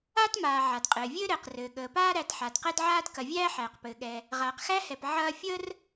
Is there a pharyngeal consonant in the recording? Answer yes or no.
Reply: yes